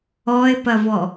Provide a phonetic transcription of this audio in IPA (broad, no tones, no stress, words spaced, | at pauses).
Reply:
ɔɪ̯pɐvɔ